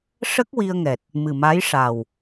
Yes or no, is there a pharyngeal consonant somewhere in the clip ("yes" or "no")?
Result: no